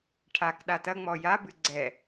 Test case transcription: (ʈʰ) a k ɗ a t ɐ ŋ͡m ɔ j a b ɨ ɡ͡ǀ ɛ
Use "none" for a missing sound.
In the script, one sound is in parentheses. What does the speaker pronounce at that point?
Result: ʈʰ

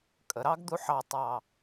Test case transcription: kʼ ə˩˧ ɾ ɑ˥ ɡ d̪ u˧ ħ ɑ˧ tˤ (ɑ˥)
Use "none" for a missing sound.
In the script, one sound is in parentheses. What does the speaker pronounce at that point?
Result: ɑ˧˩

